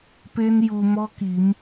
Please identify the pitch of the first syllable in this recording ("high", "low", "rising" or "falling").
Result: high